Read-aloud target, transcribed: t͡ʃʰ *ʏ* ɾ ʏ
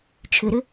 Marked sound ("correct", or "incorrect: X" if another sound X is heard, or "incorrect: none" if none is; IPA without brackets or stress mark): correct